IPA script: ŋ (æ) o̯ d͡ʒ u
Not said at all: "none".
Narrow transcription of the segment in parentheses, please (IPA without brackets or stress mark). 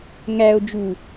æ